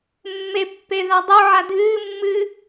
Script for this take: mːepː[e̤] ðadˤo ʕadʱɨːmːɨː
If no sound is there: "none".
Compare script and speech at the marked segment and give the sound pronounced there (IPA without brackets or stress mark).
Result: e